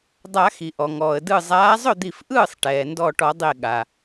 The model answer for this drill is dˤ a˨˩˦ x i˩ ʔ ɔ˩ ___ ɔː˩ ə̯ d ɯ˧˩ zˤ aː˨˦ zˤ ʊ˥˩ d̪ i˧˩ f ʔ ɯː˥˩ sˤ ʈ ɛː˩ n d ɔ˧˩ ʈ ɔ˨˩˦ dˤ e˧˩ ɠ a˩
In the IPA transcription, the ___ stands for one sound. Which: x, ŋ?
ŋ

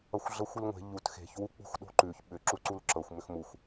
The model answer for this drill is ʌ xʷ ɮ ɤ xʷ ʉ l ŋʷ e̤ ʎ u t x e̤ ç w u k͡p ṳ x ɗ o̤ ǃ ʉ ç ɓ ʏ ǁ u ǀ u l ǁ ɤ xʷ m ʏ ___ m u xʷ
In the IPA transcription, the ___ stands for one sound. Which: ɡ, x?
x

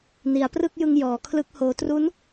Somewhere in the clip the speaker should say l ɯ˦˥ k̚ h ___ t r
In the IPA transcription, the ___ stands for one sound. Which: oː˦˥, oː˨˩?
oː˦˥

